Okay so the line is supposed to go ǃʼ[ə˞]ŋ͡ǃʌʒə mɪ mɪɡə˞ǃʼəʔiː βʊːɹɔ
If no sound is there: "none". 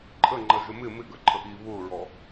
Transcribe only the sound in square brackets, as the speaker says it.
ə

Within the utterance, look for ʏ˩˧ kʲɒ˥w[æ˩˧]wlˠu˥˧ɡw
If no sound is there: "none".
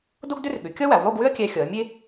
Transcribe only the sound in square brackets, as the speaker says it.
æ˩˧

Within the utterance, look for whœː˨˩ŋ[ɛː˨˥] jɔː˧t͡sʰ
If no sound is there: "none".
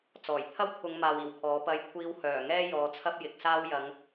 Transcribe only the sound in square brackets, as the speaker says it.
ɛː˥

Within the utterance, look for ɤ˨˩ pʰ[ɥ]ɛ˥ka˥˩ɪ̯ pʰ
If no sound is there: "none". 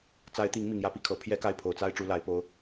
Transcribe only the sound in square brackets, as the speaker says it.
j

